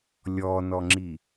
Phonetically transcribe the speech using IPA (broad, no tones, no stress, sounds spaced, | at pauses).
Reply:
lʲ ɔ n ɔ ŋ͡ǁ i